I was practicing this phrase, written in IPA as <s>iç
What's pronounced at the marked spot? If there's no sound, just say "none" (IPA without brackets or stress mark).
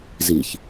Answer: z